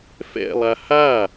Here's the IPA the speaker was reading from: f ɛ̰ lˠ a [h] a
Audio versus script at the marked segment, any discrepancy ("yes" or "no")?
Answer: no